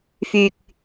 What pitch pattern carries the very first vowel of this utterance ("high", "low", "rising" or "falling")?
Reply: low